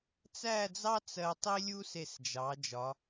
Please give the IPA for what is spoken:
t͡s æ˥˧ d͡z ɑ˥ t͡s ɜ˧ tˤ i˥ lʲ u˥ s e˧˩ s d͡ʒ ɑ˩˧ d͡ʒ ɒ˩˧

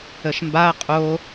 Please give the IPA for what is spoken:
ə ʃ m b a ɐ̯ qʼ o

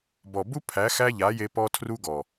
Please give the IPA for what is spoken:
b ɔ˨ b u˦ pʰ æ˨˦ x æ˦ ʎ a˨˦ j e˧ p ɔ˦ tʰ r u˦ ɡ ɔ˨

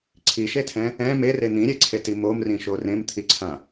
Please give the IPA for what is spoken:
ǀʰ i ʃ e tʰ ɛ̃ | ɛ̃ m e r e n̪ ĩ ɾʲ e ǀʰ e t i m o m r ĩ ʃ o r ẽ m t̪ʰ i ǀʰ ã

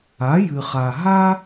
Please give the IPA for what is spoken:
a˨˥ j ɨ˨ χ a˨ ɦ a˥

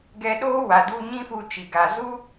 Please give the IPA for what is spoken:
ɡ ɛ˧ ɗ oː˦ w a˨ d u˧ ɲ ĩ˦ f u˧ t͡ʃ i˨ ɡ a˨ z u˦

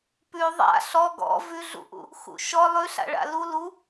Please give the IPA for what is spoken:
p ʉ ðˤ a̰ ɬ ɔ ɡ ɔ̰ v ʉ ɮ ṵ ʔ ṵ | x ṵ ʃ ɔ lˠ ʉ ɬ a̰ ɭ a̰ l u l u

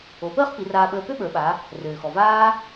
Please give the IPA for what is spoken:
o˩˧ p əː˥ χ p i˩˧ r aː˧ ɓ əː˧ p ø˥ ɓ ə˞˩˧ ɓ a˩˧ | r øː˩ x ɔ˩ v aː˥

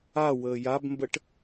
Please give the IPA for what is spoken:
a w əː j a b m b ə ʈ

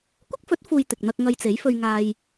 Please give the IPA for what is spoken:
kʷ ɪ˥ k̚ f ɵ˨˥ t̚ f uː˨ j t̪ ɪ˨ k̚ n̪ ɐ˧ k̚ ŋ ɐ˧ j t͡s e˨˥ j f ɵ˧ ɥ ŋ aː˧ j

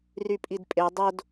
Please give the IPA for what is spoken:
r y pʼ i d pʼ e dˤ o d

